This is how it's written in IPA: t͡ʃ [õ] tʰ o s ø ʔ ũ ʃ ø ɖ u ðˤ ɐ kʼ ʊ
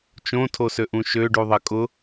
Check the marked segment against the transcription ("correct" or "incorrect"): correct